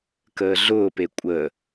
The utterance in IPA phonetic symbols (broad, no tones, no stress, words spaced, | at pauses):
kəːɮʊːpe kʷʼə